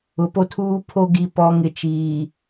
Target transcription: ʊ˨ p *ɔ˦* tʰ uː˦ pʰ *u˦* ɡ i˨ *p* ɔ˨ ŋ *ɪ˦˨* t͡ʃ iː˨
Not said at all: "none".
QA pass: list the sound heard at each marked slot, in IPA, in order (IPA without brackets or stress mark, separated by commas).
o˦, o˦, p, ɪ˦